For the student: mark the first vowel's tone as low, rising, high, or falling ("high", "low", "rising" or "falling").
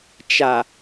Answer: low